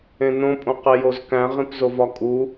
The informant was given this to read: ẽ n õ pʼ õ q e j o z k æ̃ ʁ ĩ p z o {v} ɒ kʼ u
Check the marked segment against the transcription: correct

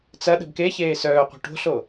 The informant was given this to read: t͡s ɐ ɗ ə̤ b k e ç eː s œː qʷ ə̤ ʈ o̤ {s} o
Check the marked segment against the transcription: incorrect: ɬ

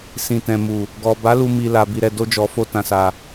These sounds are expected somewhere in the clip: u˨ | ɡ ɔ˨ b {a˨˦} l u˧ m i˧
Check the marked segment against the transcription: correct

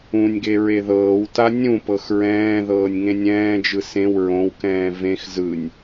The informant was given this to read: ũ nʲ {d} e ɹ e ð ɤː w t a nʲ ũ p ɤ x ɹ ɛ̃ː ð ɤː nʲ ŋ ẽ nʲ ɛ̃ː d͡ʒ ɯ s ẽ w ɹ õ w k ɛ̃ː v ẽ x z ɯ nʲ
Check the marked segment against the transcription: incorrect: ɡ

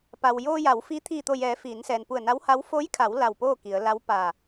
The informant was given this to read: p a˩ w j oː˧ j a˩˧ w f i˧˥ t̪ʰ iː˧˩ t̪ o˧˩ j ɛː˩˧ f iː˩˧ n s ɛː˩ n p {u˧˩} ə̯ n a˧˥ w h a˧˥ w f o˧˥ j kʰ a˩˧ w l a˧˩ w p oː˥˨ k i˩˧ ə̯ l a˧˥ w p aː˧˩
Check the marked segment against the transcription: correct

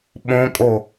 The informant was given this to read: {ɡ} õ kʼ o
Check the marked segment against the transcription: incorrect: ɓ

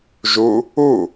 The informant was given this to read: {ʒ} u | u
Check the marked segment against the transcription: correct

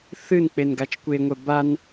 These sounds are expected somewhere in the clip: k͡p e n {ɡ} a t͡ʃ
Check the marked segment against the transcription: correct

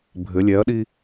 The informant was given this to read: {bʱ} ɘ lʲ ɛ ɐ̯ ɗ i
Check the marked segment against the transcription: correct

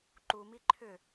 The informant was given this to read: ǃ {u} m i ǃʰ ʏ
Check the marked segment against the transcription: correct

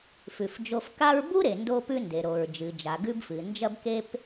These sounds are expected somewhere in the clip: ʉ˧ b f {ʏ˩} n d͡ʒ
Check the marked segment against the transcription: incorrect: ɨ˩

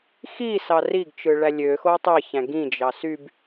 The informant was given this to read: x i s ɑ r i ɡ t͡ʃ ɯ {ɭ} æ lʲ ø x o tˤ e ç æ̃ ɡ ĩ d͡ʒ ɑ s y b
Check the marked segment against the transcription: correct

